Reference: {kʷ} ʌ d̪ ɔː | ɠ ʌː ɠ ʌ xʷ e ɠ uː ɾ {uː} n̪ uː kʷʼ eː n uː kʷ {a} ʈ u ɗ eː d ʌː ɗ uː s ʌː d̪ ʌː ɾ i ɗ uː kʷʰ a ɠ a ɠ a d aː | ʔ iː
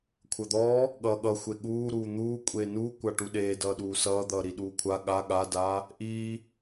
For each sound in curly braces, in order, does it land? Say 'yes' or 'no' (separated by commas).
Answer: no, yes, yes